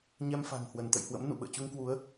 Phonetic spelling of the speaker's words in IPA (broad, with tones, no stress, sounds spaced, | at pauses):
ɲ ɛ˧ m f a̤˨˩ ŋ h w ə˧˩ n t̪ ə̰˧˨ j h w ə̰˧˥ m n ṵ˧˨ ɓ ə̰ː˧˨ t͡ɕ u˧ ŋ k w u˨˦ ə̯